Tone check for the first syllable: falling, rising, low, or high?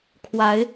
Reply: rising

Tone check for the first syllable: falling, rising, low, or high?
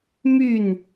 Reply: falling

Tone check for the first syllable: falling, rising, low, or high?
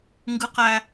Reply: high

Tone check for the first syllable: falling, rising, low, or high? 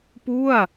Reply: falling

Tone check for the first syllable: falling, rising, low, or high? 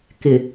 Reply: low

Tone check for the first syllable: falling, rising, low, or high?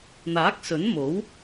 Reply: rising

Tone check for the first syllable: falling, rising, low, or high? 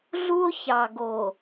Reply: high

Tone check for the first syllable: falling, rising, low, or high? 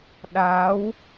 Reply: rising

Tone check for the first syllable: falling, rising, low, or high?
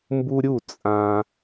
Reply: high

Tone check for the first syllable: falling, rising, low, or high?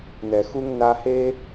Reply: low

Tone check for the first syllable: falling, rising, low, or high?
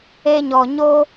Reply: high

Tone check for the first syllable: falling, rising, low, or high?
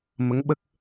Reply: rising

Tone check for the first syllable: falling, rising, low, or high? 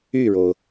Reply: falling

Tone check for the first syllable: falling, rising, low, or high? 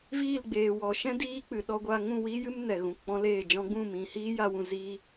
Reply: falling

